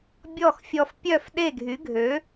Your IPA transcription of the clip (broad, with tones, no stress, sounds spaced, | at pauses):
bʲ ɔ˥˩ x fʲ ɔ˧ f pʲ œ˥˩ f ɗ e˥˩ ɡʱ y˩˥ ɡʱ ø˩˥